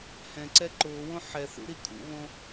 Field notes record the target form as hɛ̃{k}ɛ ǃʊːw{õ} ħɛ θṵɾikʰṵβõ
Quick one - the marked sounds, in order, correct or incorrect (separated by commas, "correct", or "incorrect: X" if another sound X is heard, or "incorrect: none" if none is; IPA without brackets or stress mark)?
incorrect: ǀ, correct